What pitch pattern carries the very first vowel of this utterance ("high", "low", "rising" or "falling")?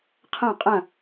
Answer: falling